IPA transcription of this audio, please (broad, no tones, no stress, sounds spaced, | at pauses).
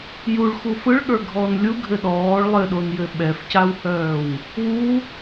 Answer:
j u ɭ x u f ɯ ɭ ɠ ə˞ ɡʱ ɔː n lʲ u ɡʱ ɘ ɗ ɔː ɭ lˠ ɘ ɗ o n j ɘ ɓ ɛ f c a w h œː w | w u